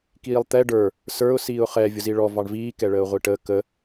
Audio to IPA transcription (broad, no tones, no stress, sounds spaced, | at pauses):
k iː lˠ t̪ ɛ ɖ ə˞ | s ə˞ ʊ̯ s iː ʊ̯ χ ɛ vʲ ʊ z i ɭ ɔ v ɑ ɳ v iː k ɛ ɭ əː ʊ̯ ʁʷ i ʈ əː k ə